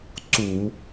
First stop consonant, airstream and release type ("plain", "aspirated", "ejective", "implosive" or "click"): click